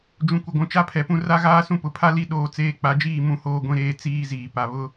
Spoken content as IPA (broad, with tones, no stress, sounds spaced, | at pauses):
d͡ʒ ũ˨ kʷ ɪ˨ ɡʷ ũ˨ t͡ʃ a˦ pʰ ɛ˨ p ũ˦ r a˦ ɣ aː˦ s ũ˦ p ʊ˨ pʰ a˦ l i˦˨ ɗ oː˦ t͡s eː˦ k͡p a˨˦ d͡ʒ iː˦˨ m ũ˦ h oː˦ ɡʷ ĩ˦ ɾ eː˦ t͡s iː˦ z iː˨ p a˨ β ʊ˦